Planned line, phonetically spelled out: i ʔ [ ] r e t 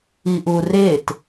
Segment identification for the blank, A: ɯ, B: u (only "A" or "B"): B